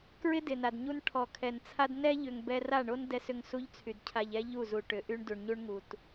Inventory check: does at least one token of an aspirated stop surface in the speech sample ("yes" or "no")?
yes